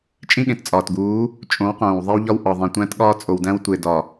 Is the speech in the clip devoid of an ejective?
no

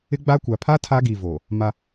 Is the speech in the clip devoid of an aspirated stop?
no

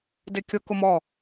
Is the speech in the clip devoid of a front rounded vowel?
yes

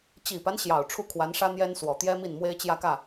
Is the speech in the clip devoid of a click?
yes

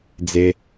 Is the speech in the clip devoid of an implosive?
yes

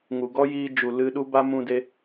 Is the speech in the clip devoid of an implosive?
no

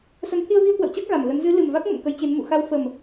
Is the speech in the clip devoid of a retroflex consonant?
yes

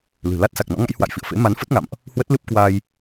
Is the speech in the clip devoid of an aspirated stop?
yes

